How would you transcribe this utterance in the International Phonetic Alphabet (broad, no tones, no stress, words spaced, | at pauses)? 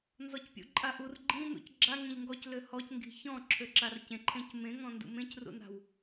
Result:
nzɔcpʲṵǃʼaʔur ɡ͡ǃĩ nṵcɡ͡ǁa ŋẽʎŋɡɔc løhɔc ŋɡi̤çɔ̃ ǁʰøǁarcẽ ǃʰẽcmẽ ŋɔ̃ndṵmẽc rṵna̤w